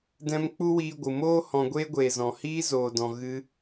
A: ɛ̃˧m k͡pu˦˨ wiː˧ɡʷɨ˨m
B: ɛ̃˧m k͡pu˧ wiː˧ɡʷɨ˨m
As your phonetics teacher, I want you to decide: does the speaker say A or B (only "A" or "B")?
B